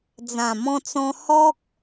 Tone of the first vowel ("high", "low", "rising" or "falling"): low